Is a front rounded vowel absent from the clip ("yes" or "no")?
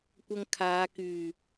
no